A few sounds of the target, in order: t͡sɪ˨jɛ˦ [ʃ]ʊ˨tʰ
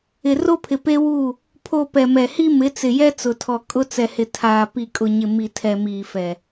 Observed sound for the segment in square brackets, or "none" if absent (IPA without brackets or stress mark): t͡s